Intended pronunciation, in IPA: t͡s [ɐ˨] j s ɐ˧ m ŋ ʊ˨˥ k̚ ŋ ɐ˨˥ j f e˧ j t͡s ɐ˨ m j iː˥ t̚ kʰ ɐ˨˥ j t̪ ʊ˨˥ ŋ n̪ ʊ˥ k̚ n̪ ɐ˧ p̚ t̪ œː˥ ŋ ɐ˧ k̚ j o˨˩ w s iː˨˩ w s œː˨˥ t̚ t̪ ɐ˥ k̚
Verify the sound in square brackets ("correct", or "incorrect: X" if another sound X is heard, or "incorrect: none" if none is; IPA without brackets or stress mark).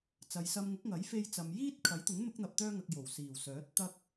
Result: correct